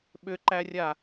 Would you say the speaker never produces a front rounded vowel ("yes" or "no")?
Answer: no